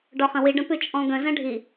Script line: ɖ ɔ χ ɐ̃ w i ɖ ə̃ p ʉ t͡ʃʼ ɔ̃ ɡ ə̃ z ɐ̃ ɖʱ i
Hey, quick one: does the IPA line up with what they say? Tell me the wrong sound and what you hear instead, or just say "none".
none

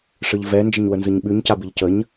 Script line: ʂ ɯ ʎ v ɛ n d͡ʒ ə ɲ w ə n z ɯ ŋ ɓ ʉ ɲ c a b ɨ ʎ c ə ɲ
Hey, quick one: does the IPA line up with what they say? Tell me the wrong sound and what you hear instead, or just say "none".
ŋ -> ɲ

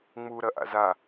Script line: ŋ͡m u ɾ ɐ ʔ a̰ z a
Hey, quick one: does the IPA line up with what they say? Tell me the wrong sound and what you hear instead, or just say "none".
none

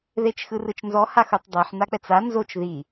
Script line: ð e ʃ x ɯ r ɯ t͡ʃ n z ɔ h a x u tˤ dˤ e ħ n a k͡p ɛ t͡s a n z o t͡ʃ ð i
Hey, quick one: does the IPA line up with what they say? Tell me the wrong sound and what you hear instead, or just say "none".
ʃ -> t͡ʃ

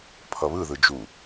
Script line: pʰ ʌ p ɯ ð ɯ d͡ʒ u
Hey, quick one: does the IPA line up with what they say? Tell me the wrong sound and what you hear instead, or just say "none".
p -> β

